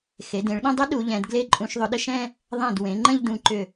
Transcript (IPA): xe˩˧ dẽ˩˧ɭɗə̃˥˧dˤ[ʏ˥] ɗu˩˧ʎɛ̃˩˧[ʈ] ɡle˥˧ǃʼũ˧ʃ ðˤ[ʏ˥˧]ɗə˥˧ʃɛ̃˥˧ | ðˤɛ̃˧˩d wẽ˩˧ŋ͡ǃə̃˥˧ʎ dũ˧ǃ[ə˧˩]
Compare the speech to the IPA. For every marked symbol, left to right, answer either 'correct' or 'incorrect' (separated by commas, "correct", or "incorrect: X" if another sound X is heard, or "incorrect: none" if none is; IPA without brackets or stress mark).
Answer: correct, incorrect: d, incorrect: ʏ˧, incorrect: ʏ˧˩